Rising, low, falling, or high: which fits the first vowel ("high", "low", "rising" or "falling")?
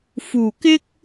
low